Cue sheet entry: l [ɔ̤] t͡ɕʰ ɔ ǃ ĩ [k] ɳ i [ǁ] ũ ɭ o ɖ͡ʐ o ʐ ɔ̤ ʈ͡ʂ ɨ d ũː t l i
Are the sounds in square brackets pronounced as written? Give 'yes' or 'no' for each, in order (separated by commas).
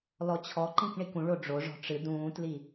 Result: no, yes, no